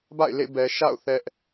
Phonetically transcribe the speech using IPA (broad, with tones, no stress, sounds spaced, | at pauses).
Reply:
b a̰˦˨ ɪ̯ l ḛ˦˨ b ɛ˨ ʃ a̰˦˨ ʊ̯ θ ɛ˦ ʔ